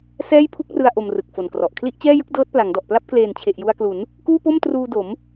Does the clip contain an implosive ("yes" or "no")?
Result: no